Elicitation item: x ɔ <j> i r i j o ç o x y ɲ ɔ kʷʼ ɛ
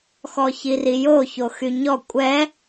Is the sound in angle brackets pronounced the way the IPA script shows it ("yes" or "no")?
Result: no